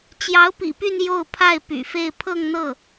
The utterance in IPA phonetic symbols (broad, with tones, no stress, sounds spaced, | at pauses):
t͡ɕ j ɑ˧˥ ʊ̯ p ḭ˨˩ p y˥˧ n j o˥˧ ʊ̯ pʰ a˥˩ ɪ̯ p y̰˨˩ f e˥˧ ɪ̯ pʰ ɤ˥˧ ŋ n̪ ɤ˥˩